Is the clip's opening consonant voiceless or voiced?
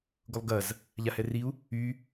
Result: voiced